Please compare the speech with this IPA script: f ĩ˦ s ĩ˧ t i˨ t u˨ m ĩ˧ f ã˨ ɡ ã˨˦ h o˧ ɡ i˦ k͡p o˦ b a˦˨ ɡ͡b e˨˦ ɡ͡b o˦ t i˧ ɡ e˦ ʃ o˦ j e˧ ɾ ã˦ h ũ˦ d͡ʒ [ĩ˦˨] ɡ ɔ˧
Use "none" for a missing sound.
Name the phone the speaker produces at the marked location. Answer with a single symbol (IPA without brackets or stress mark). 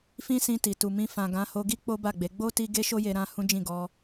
ĩ˦˨